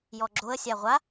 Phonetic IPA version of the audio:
j ɔ ɡ͡ǁ o ə̯ sʲ a ʁʷ a

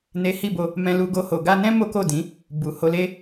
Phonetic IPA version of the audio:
n e˦ h i˦˨ b o˧ | m ɛ̃˧ l u˧ ɡ o˧ h o˨ ɡ a˧ n ɛ̃˦ m o˦ k o˦˨ d ĩ˨˦ | b u˨ h o˧ l e˦

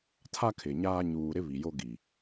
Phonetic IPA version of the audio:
tʰ a˦ kʰ ɪ˨ ɲ aː˦ ɲ uː˨ ɾ ɪ˦ β i˨ j o˦ ɡ i˨

